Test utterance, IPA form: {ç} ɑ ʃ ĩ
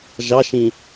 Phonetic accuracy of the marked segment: incorrect: ʒ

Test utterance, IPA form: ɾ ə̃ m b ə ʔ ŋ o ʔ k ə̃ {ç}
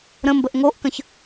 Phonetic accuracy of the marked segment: correct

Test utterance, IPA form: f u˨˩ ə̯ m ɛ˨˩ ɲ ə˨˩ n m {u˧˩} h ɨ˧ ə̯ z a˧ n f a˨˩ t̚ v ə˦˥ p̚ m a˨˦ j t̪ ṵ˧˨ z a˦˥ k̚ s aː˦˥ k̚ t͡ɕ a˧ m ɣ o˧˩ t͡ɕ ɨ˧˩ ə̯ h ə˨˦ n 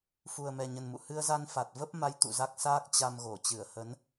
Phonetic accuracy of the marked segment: incorrect: ṵ˧˨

